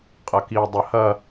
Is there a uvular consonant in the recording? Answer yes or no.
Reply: yes